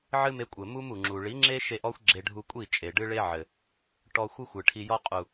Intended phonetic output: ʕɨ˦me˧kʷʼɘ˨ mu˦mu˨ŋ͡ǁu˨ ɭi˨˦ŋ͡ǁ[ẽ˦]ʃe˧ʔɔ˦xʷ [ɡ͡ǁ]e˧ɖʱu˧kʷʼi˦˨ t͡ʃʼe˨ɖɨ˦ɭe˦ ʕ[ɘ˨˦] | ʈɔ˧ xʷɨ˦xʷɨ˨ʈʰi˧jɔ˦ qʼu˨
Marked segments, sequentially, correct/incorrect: incorrect: e˦, correct, incorrect: ɘ˨

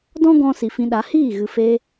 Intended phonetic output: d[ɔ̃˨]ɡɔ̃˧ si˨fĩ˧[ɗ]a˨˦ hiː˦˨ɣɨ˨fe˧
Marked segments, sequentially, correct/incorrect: incorrect: ɔ̃˦, correct

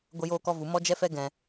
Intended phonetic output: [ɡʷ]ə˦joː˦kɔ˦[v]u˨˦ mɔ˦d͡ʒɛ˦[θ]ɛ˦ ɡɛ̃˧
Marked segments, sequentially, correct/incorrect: correct, correct, incorrect: f

